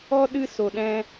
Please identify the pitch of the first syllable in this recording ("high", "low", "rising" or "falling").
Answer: high